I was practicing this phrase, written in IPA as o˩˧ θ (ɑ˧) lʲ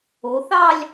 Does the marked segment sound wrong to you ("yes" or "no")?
yes